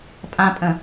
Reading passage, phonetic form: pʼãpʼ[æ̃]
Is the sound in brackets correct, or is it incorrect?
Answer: incorrect